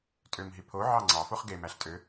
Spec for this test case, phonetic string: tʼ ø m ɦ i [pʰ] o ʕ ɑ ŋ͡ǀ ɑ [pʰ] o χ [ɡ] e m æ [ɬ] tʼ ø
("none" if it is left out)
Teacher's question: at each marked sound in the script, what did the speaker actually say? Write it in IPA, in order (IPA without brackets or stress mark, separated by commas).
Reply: pʰ, f, ɡ, ɬ